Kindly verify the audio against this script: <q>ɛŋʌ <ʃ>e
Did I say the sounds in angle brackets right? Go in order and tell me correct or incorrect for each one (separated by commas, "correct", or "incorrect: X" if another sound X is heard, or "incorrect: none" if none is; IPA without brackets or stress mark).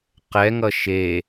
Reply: correct, correct